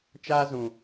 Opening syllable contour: high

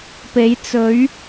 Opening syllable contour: rising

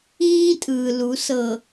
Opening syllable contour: high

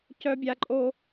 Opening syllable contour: high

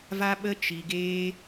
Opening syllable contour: high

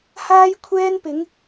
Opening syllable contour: high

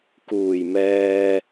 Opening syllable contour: low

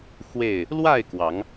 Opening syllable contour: falling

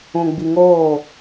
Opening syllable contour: low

